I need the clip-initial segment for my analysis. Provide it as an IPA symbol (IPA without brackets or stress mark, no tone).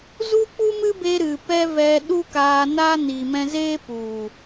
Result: z